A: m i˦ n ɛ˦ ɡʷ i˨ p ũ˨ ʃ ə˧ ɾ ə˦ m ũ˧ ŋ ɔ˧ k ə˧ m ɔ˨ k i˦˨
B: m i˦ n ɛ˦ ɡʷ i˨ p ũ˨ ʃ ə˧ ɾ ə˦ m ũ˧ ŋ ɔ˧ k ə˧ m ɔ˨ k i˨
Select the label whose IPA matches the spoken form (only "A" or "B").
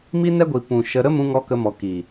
B